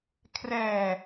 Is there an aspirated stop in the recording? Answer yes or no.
yes